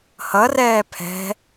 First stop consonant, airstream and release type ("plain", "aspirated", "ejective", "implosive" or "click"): aspirated